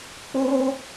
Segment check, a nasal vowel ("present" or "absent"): absent